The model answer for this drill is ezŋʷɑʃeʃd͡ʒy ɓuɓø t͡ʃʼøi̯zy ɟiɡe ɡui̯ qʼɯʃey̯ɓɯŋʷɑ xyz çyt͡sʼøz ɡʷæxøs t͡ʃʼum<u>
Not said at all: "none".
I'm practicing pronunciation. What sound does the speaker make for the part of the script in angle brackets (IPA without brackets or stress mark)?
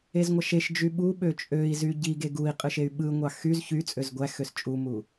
u